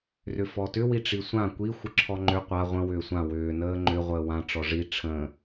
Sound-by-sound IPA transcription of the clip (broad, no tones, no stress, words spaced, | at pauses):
rʏfɔtʏ wiʈ͡ʂisʷã kʷi xʷəǁʰɔŋ͡ǃʏ qʷa ʁʷə̃ wʏːsʷã wʏː nəːŋ͡ǃʏ ʁʷəːwã ʈ͡ʂɔʐi ʈ͡ʂʰə̃